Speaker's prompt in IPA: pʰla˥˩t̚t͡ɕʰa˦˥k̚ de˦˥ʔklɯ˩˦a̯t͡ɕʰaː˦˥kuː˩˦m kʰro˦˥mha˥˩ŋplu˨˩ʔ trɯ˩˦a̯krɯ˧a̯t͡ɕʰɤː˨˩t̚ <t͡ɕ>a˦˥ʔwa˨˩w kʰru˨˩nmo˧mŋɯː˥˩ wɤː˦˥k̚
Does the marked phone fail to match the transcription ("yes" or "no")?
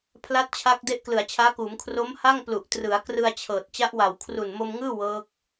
no